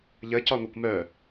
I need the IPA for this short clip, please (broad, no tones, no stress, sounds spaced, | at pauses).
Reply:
ʎ ə c ɒ ŋʷ œ kʷ m œ